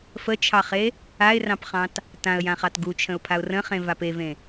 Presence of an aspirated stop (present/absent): present